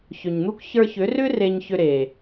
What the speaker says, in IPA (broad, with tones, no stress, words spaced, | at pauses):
çʏ˨ɲn̪u˦k çə˞˧çʏ˨˦rʏ˦ re˧ɲçʏ˧ɾe˨